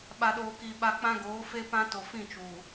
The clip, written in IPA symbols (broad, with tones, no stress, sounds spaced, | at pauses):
ɓ a˨ ɗ oː˨ k i˨ ɓ a˨ k͡p ã˦ ɡ oː˨˦ f e˦ p ã˦ t o˨ f ĩ˦˨ t͡ʃ uː˨